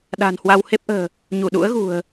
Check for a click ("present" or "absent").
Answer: absent